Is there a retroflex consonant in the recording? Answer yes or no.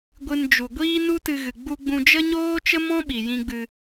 no